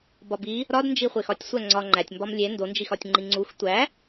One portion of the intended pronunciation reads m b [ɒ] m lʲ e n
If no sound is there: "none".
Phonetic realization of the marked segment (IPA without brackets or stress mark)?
ɒ